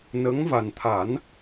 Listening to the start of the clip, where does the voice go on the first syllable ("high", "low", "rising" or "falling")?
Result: rising